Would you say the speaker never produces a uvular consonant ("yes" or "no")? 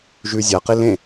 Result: no